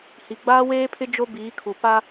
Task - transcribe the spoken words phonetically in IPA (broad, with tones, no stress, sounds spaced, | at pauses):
h i˨ ɡ͡b aː˦ w eː˦ pʰ ɪ˦ d͡ʒ o˦ b iː˨˦ kʰ u˨ p a˦